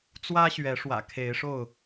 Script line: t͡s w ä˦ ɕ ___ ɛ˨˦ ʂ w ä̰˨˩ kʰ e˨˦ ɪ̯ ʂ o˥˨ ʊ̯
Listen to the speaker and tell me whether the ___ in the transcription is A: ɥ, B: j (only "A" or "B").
A